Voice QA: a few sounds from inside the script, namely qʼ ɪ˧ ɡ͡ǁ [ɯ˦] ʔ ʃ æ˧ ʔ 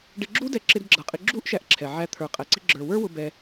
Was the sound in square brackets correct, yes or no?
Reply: no